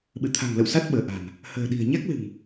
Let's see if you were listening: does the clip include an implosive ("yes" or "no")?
yes